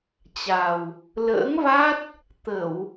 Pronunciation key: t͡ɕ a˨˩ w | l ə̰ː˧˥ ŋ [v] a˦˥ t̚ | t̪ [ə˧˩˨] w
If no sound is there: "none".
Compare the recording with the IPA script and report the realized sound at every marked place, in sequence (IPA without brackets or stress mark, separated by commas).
v, ə˧˩˨